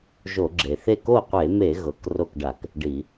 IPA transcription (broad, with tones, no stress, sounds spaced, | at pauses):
ʒ o˧˩˧ ɡ͡ǁ e˩ θ e˥˩ k o˥˩ qʷ e˧˩˧ m e˧˩˧ ɣ ɤ˩˧˩ k r o˥˩ k ɖ a˧˩˧ k | ɖ i˧˩˧